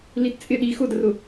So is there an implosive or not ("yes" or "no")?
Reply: yes